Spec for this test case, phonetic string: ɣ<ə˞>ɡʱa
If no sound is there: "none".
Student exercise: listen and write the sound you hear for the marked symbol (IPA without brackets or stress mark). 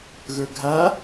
ə˞